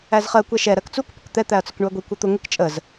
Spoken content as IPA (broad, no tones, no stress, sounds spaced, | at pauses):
æ z χ ɜ kʷ ɛ ʃ ɛ ɾ ɜ k t͡s u k p ʊ k t̪ ɛ t̪ æ ɐ̯ t͡s ʊ k ɳ u ɐ̯ ɡʷ i kʷ ɛ t̪ ʊ ŋ ɪ k t͡ʃʼ ə z